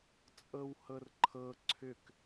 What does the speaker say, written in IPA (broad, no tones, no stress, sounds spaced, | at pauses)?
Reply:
t͡sʼ ɤ w h ɤ r ǃʰ ɤ ǀʰ ʏ k